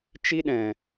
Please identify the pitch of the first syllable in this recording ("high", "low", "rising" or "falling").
high